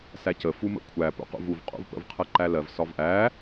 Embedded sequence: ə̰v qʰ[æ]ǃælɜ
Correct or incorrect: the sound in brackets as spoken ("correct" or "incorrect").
incorrect